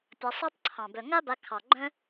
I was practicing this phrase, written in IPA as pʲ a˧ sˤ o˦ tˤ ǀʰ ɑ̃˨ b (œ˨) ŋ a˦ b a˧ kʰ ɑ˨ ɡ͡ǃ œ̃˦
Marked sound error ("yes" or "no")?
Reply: no